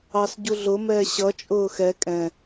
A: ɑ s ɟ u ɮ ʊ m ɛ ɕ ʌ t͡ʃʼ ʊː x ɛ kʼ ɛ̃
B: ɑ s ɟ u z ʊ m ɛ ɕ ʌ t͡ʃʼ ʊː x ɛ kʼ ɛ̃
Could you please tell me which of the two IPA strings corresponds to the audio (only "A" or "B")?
A